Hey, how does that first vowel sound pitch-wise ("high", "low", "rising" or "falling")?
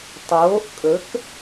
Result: rising